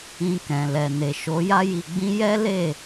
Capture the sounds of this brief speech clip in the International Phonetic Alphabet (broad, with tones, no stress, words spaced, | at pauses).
ĩ˧kɛ̃˨lɛ˨ ne˨ʃo˨˦ja˦ ji˧ɡ͡bĩ˦ jɛ˦le˦˨